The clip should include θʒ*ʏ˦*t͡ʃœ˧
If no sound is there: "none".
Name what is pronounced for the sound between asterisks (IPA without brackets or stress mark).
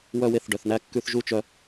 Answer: u˦